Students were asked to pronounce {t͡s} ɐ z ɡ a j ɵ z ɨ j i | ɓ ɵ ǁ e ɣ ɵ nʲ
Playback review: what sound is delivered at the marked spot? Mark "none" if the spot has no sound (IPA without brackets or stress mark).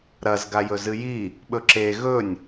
ɾ